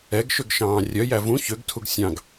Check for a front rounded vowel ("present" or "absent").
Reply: present